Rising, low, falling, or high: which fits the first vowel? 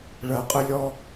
low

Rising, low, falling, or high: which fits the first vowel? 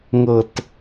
low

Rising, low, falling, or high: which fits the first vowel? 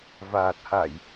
low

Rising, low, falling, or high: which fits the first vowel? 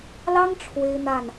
high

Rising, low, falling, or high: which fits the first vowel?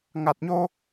low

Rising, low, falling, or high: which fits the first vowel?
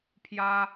high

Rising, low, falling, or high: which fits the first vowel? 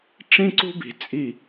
high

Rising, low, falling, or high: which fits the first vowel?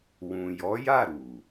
low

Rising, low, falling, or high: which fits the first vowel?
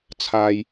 low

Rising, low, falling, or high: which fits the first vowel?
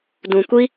low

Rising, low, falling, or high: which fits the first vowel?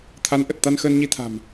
rising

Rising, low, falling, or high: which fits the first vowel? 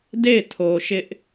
falling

